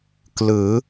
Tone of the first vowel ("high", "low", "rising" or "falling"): rising